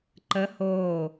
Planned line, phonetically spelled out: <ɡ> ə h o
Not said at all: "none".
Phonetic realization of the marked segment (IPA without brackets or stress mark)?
ǃ